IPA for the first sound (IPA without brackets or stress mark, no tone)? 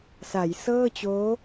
s